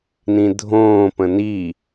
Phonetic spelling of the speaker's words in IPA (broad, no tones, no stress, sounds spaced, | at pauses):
n ĩ dʱ õː p ə̃ n i